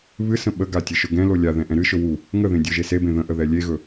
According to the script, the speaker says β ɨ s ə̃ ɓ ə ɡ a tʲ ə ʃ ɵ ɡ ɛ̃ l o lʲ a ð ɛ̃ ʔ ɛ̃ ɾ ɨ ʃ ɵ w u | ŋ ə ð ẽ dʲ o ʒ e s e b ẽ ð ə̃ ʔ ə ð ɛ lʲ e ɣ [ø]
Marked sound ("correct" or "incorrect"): incorrect